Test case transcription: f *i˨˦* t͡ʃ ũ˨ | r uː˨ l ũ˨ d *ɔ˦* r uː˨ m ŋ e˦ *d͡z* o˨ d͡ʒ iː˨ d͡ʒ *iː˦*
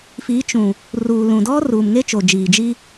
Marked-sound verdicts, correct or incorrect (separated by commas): correct, correct, incorrect, incorrect